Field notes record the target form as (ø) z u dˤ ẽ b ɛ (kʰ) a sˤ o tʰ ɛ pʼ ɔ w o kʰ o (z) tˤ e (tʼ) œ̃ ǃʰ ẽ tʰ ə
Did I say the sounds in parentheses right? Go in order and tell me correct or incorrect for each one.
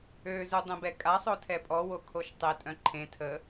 correct, incorrect: kʼ, incorrect: ʃ, correct

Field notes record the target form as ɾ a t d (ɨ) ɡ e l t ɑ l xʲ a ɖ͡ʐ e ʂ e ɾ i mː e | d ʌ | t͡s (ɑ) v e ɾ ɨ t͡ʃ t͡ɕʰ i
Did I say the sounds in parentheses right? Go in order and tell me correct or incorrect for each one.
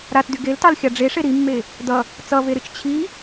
incorrect: y, incorrect: ʌ

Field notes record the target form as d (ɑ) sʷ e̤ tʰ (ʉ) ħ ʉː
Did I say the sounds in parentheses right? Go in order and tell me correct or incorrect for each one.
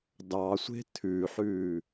correct, correct

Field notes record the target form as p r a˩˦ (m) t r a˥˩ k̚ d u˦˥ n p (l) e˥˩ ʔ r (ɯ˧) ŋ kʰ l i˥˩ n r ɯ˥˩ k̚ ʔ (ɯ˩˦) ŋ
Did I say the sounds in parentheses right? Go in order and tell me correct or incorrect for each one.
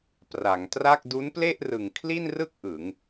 incorrect: ŋ, correct, incorrect: ɯ˨˩, correct

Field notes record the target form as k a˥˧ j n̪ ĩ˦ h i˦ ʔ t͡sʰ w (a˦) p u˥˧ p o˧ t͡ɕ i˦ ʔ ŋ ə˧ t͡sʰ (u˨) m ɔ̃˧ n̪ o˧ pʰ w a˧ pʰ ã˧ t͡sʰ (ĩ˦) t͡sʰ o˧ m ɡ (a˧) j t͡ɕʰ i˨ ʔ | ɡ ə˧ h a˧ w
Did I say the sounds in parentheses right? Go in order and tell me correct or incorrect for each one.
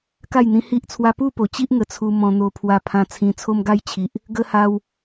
correct, incorrect: u˧, incorrect: ĩ˧, correct

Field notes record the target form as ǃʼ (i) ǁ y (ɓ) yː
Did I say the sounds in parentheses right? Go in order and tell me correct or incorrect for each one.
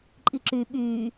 correct, correct

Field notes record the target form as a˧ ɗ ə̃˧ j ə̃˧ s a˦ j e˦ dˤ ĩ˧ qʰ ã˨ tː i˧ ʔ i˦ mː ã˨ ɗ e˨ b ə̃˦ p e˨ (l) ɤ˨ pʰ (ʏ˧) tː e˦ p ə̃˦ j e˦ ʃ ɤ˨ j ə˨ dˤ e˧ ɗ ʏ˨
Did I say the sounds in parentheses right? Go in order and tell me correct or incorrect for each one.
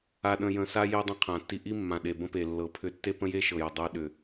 incorrect: lː, correct

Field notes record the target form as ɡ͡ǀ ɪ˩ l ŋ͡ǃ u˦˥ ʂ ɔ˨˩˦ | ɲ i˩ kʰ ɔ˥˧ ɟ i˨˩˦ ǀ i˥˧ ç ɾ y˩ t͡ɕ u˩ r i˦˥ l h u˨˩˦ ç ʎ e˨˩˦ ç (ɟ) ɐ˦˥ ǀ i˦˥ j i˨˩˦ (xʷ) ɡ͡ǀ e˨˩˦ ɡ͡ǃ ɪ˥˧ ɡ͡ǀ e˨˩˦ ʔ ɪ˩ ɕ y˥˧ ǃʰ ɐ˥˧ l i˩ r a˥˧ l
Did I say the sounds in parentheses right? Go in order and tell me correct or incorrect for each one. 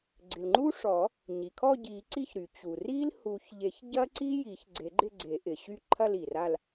correct, incorrect: ç

